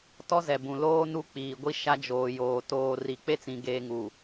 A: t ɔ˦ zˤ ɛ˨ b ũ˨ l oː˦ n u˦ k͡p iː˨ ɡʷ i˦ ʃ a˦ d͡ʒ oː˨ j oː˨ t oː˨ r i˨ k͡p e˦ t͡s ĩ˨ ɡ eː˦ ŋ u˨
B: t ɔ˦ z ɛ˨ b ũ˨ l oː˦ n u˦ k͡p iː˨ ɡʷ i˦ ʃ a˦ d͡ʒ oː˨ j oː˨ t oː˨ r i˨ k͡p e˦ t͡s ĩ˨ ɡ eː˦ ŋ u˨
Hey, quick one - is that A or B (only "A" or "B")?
B